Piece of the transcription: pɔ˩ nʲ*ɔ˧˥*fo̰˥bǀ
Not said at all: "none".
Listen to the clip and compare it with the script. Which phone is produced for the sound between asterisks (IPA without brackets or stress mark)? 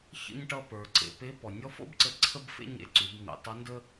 ɔ˧˥